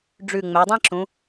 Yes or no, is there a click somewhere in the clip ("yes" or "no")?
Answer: yes